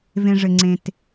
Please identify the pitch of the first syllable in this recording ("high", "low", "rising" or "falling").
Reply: low